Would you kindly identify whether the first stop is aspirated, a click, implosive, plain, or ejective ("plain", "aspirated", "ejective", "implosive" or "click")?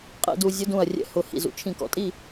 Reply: ejective